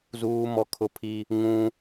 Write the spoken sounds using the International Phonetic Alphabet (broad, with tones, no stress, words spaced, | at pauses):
zuː˦mɔ˦ kʰʊ˦pʰi˦ | ŋũ˦